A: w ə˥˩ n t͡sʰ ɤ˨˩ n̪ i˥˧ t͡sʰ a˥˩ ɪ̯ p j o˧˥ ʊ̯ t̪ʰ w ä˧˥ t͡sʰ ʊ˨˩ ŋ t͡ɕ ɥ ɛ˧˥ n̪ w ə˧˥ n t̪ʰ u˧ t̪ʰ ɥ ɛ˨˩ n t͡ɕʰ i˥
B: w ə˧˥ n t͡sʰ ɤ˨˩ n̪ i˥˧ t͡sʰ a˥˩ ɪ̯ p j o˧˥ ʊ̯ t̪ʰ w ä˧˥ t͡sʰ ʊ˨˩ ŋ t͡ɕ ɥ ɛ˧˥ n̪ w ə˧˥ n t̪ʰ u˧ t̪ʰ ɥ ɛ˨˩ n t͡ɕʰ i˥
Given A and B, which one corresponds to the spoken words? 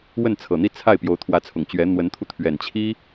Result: A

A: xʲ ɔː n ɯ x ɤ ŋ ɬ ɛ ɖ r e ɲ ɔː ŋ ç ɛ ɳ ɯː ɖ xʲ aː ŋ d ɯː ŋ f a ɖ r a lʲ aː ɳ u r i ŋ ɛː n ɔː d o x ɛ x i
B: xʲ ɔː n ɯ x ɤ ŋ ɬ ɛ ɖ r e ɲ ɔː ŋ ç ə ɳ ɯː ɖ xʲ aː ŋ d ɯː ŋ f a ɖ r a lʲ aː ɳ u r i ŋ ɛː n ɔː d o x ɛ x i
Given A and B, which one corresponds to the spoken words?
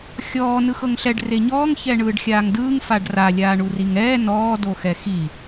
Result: A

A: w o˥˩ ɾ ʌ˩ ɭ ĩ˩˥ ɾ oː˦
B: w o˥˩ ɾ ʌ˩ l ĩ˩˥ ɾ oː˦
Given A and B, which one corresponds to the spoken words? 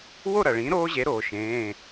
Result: A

